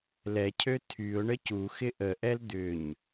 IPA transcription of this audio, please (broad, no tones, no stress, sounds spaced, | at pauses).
l ɛ cʰ ø tʰ y ʊ̯ ɳ ə c u x ɪ ʔ ə ʔ ɛ l d̪ ʏ ɲ